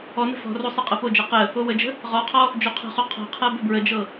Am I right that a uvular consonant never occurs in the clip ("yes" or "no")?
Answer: no